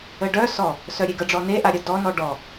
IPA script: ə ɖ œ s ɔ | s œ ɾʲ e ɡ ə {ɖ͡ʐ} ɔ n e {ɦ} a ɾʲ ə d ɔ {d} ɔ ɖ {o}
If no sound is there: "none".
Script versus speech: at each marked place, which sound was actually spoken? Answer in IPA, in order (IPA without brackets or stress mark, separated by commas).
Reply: ɖ͡ʐ, ʔ, n, ɔ